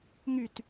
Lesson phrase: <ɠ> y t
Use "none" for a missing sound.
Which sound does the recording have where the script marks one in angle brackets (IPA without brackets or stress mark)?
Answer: ŋ